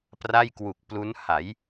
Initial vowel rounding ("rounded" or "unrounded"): unrounded